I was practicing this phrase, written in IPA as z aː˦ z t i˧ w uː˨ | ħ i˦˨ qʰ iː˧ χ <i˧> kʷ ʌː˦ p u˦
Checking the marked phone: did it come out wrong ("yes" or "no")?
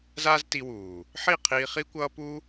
yes